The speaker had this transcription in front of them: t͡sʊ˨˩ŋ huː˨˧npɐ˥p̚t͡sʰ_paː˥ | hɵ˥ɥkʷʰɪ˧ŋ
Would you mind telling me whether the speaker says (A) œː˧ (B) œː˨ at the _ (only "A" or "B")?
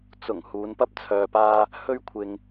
A